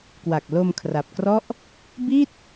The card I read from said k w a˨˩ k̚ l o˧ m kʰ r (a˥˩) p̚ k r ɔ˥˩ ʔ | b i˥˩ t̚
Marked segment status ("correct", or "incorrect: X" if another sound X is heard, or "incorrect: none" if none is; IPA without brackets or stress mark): incorrect: a˨˩